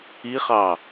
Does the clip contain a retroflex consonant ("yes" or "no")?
no